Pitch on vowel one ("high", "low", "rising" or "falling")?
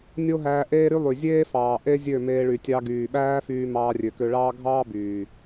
high